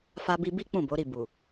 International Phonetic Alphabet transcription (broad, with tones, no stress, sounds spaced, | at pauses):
f a˧ b i˧ b i˦ k͡p ũ˦˨ b o˨˦ ɾ i˦˨ b u˨